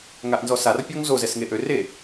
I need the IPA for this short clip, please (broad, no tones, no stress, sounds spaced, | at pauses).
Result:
ŋ a ʔ n z ɔ s a r pʲ ɔ ŋ z o z ɛ s ŋ e ʔ ø r e